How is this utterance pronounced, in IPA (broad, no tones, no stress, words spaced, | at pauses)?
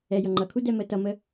ɛ jʌŋ͡ǃʌkʰu dɛməːtʌmə